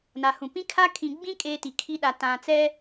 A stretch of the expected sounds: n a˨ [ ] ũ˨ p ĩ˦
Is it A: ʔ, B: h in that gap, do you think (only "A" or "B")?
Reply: B